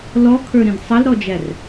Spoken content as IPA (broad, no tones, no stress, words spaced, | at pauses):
lɔkʰə˞ɾĩd sˤʌlɾɔd͡ʒær